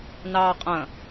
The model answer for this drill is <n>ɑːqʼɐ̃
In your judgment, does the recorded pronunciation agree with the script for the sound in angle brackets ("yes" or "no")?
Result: yes